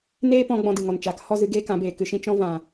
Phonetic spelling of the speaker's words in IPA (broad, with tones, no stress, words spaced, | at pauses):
neː˦pɔ̃˧ ɡ͡bɔ̃˧dɨ˨ŋɔ˨nt͡ʃaː˨k hɔ˦˨zɨ˧ ɡeː˦kã˨˦beː˨ kɨ˧ʃĩ˦ t͡ʃɔ̃˧vã˨